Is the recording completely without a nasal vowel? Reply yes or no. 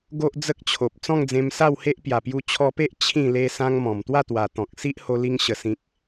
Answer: no